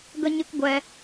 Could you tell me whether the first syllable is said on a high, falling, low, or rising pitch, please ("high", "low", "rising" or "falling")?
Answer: high